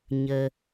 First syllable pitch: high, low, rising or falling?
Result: low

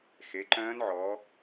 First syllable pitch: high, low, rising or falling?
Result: rising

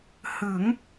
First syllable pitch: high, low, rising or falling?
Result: rising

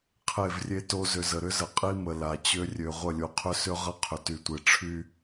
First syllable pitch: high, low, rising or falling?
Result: falling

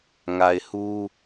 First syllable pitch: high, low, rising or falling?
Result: low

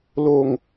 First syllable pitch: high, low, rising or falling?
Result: falling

